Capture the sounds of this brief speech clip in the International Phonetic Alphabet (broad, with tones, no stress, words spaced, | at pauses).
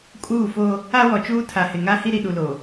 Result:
kʼuː˦˨foː˦ | a˦wɔ˨t͡ʃuː˦ tʰa˨hɪ˨ŋa˦ hi˦ɾi˨ɗu˨loː˨